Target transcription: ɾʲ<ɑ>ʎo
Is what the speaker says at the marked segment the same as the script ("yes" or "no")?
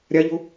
no